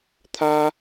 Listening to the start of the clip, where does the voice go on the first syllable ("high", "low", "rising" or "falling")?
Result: high